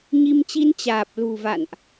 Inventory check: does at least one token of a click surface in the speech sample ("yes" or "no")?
no